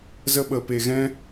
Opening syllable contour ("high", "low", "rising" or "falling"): high